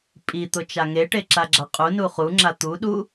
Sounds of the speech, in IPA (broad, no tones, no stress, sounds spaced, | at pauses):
pʼ i t̪ ʊ t͡ʃ a ŋ e ʈ e ǁ a ɡ͡ǁ a qʼ u n u χ u ŋ͡ǁ a t̪ u ɗ u